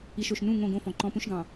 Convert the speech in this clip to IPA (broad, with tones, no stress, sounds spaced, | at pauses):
i˨ ʃ o˨ ʃ n ũ˦˨ ŋ õ˦˨ ɡ õ˦ f ɔ̃˨ ǃ ɔ̃˦ p ũ˦ ʃ ɡ ɑ̃˨